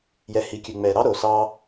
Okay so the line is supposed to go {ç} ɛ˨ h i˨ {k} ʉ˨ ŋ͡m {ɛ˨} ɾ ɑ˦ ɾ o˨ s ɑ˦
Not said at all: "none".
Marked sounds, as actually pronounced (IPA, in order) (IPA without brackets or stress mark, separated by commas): j, kʲ, ɛ˨